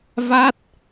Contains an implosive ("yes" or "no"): no